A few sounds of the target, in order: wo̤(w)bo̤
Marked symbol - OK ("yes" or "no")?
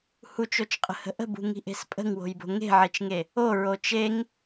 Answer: no